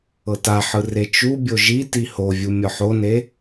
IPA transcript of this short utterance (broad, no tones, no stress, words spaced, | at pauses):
ɤtaħɯ ret͡ʃubʲo ʒiti hovʲu mʲɔħone